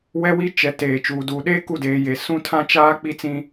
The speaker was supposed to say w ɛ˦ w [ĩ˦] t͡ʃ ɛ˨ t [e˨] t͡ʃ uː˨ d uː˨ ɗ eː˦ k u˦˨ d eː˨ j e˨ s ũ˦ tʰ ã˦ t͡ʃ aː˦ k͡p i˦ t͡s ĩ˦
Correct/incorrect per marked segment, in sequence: incorrect, incorrect

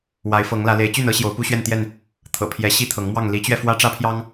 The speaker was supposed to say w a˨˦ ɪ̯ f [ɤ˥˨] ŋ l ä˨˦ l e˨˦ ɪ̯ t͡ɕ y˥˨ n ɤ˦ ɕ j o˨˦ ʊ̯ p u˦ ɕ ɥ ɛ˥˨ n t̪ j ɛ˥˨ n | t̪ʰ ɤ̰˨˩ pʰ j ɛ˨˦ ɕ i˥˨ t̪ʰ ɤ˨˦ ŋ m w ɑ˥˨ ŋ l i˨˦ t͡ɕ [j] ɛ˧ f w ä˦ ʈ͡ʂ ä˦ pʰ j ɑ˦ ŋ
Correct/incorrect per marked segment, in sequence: incorrect, incorrect

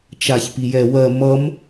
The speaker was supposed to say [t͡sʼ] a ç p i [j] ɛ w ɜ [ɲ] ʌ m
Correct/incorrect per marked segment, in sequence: incorrect, correct, incorrect

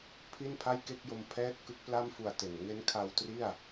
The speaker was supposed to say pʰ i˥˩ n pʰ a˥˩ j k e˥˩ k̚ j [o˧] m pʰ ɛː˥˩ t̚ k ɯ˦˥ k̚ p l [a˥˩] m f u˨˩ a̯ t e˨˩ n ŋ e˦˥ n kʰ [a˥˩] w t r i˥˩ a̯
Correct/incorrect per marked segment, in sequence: correct, correct, incorrect

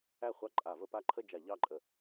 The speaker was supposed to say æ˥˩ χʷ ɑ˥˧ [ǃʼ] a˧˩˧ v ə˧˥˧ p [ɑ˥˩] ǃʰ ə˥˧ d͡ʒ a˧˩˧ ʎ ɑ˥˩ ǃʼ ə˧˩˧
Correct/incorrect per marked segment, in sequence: correct, incorrect

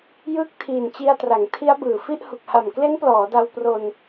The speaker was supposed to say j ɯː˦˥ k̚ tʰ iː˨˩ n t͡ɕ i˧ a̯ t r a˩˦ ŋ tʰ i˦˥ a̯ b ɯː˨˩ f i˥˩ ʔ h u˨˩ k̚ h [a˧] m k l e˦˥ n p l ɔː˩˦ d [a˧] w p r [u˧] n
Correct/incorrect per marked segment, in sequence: incorrect, correct, incorrect

